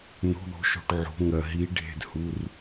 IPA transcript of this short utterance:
no̤˧˥˧ðo̤˧˥ʃo̤˧ʈ ʕo̤˧˥ŋɜ˧ ɦi˧˥ ɖʱe̤˥˧dhu˧˥˧r

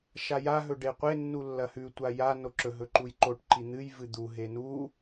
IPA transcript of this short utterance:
ʃajaɦɵ ɖeqʷenːu lːɐhʉ tʷaja noǁɵɦɵ ǃujǃoʈ ǃin̪ɨjvɨ d̪uɦe nu

